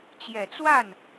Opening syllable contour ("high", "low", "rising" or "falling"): low